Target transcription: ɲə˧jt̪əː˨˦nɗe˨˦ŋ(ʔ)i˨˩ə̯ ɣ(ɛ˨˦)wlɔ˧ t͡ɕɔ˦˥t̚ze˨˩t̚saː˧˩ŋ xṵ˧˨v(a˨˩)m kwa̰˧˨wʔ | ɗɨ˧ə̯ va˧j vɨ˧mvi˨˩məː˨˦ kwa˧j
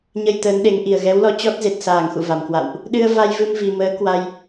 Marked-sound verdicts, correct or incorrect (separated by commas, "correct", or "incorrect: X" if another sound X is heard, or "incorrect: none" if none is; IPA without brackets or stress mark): correct, correct, correct